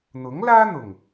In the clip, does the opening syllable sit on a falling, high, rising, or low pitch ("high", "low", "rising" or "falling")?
rising